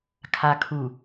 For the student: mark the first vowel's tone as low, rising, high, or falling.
low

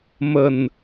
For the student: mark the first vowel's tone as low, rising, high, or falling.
low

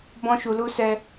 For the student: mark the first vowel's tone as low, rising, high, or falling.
high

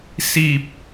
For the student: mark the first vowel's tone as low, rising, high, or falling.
low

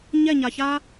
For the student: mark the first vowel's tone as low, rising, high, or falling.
falling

